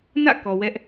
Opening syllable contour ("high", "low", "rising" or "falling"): falling